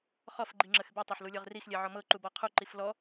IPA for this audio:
χ ɔ f ɡ͡ǃ i ŋ͡ǁ ə x b i tˤ a ħ l u lʲ ɤ ʁ r i x lʲ ɛ ʕ ɔ m ɤ ǃ u b ɔ qʰ u ǃ i f l ɔ

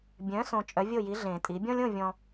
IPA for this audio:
bʲ œ̃˩˥ s õ˨ t͡ʃʼ œ˩˥ vʲ o˥˩ j i˩˥ ɮ ẽ˨˩˦ tʼ i˩˥ bʲ ɔ̃˦ lʲ õ˥˩ vʲ ɔ̃˨

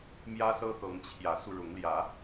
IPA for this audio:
m j ä˦ s ɤ˦ t̪ ɤ˨˦ ŋ t͡ɕʰ j ä˨˦ s u˧ ɻ ʊ˨˦ ŋ l j ä˨˦

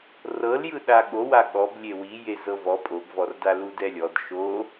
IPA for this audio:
r ɤ l j ɯ ɗ a ɠ o w a ɠ ɔ b lʲ e w i j e z ɤ v ɔ pʼ o ɡ v ɔ r d a l u d ɛ lʲ ɔ d ʃ o

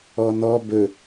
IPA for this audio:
ɔ n ɔ b ɵ

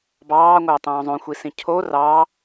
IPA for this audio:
b ɑː ŋʷ æ tˤ õː zˤ õ xʷ i s ĩ cʰ o r ɑ

